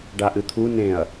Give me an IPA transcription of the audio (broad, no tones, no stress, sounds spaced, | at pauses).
ɖ a ʔ ɨ t̪ʰ u n ẽ ɐ̯